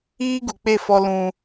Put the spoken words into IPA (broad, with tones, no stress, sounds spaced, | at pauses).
iː˦ ɡ u˨ k͡p e˦˨ f ɔ˦ l ũ˦